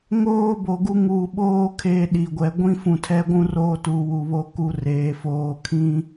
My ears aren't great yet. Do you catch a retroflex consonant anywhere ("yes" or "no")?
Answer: no